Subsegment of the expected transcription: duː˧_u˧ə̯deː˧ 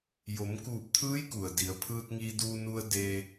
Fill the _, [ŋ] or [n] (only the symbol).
n